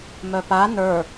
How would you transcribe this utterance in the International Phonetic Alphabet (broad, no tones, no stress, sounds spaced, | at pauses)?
m œ p a n ə˞